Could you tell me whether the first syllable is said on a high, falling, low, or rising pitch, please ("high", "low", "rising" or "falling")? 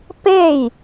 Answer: falling